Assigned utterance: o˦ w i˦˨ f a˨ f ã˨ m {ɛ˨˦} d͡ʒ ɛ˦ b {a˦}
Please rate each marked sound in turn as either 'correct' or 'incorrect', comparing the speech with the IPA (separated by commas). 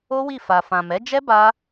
correct, correct